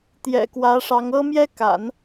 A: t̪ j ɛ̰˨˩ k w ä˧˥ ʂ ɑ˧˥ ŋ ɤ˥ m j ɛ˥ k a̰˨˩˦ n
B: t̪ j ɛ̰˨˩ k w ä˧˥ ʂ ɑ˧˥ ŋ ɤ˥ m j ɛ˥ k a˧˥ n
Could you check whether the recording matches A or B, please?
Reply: A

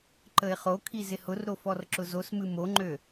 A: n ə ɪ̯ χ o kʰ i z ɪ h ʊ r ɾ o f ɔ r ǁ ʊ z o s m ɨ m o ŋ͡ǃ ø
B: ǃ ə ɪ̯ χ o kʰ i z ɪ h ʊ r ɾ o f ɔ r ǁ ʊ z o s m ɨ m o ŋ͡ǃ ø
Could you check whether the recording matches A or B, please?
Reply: B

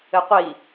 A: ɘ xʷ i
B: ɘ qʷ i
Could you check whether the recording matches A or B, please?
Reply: B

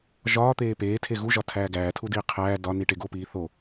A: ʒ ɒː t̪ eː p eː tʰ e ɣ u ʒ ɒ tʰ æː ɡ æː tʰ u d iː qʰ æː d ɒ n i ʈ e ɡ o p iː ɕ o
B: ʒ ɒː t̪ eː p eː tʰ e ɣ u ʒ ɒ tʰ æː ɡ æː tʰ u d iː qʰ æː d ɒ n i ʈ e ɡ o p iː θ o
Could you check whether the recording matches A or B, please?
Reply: B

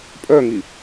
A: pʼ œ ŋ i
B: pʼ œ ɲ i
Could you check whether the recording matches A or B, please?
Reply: A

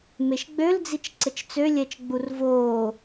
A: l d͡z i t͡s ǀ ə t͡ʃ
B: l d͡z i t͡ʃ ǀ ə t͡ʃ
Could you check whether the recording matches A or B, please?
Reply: B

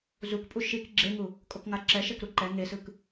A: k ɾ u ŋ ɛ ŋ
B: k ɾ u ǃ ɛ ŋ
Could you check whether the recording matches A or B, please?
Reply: B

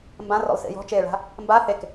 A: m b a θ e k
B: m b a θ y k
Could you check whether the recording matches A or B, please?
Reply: A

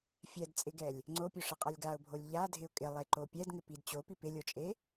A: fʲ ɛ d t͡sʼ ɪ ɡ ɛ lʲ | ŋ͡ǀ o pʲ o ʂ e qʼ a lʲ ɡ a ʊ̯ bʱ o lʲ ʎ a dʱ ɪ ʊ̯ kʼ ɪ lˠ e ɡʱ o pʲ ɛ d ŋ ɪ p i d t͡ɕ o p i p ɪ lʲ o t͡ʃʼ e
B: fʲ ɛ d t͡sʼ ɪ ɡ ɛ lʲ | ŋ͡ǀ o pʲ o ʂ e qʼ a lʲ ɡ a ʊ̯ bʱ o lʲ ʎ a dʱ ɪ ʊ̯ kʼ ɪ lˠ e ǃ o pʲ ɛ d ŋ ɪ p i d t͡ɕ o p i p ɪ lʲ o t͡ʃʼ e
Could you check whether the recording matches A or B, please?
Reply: B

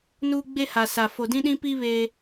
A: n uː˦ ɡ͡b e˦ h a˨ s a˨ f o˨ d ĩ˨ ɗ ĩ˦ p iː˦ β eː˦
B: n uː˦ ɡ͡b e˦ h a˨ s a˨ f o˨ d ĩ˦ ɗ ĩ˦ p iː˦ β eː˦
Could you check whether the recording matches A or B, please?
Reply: B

